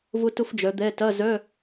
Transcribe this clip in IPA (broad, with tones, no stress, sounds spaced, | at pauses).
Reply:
v ʊ˥ t ʊ˥ f d͡ʒ œ˨˦ d̪ ɛ˧˥˧ t ɐ˧˥˧ z œ˧˥˧